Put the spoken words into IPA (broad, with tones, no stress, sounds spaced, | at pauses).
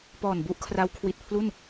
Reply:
p ɔː˨˩ n b u˦˥ ʔ kʰ r a˦˥ w kʰ w i˨˩ t̚ pʰ l u˥˩ n